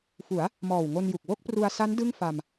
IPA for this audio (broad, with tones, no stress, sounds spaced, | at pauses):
f u˩˦ a̯ | m ɔː˨˩ w ŋ o˧ n j u˨˩ k̚ w o˥˩ k̚ p r u˧ a̯ s a˦˥ n d ɯ˥˩ ŋ f a˧ m